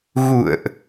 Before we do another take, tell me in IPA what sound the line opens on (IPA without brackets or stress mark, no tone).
ɣ